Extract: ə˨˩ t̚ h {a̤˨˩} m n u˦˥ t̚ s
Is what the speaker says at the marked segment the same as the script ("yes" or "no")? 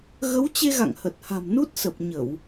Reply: yes